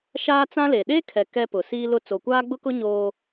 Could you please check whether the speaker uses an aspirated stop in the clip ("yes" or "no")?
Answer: yes